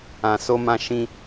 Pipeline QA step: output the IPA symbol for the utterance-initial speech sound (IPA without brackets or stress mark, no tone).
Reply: ã